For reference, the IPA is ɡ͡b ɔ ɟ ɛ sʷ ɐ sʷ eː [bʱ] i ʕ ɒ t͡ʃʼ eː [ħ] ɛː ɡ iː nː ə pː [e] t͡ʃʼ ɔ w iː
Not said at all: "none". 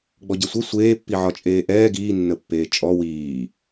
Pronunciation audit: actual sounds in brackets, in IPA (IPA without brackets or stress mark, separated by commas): pː, ʔ, eː